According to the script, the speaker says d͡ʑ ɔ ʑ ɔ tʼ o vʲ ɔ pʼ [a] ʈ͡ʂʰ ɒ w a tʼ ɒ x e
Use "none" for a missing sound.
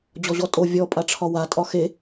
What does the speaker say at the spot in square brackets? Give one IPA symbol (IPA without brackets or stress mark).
a